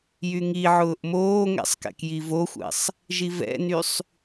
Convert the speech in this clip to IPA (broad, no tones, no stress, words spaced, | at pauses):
jyŋiʕʊːʔ moːŋɛ̰sˤ kɛ̰kjivoxʷɛ̰sˤ | ʒivɛ̰nysˤ